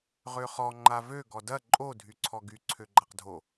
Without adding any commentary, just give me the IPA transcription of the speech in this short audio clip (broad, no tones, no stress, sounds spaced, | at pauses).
ʁ ø χ ɔ ŋ͡ǃ a v ø ɡ ɔ d ɐ ǃʼ o dʱ y ǀʰ ɔ ɡ y ǀʰ ø ɡ͡ǃ a q dʱ o